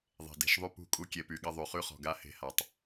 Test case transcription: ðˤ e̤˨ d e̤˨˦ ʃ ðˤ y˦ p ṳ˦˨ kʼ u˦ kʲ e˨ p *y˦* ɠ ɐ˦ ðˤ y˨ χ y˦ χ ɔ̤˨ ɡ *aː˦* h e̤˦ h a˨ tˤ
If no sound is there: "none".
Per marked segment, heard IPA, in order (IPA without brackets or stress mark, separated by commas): y˨, a˦